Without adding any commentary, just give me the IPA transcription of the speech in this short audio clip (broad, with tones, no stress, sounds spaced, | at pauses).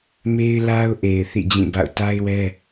m e˦ ɪ̯ l a˦ ʊ̯ ʔ e˨ ɪ̯ θ ḭ˦˨ d͡ʑ ĩ˦˨ b a̰˦˨ ʊ̯ t a˦ ɪ̯ w ɛ˦